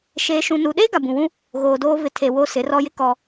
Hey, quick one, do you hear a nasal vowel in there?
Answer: yes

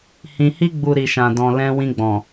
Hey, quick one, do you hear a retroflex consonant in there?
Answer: no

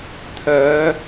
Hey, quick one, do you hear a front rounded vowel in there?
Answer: yes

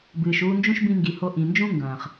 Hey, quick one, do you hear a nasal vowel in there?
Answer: yes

